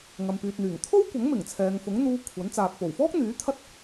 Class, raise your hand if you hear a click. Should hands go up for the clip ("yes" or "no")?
no